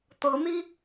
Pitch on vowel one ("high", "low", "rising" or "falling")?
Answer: rising